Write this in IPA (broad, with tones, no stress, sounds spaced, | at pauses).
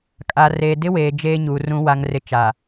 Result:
kʼ a˨ r eː˨ d ɪ˦ w eː˨ d͡ʒ eː˦ ɲ uː˨ r ũ˦ w a˦ ŋ r ɪ˦ t͡ʃ a˨